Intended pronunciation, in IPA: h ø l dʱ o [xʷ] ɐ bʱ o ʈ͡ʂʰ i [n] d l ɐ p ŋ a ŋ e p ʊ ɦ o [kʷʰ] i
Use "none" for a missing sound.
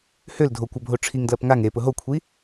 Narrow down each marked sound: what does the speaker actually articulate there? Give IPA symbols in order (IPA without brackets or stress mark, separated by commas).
kʷ, ŋ, kʷʰ